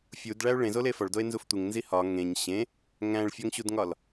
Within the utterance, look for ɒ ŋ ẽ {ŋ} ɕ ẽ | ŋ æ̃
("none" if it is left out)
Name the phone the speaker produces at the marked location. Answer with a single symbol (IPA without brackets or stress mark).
ɲ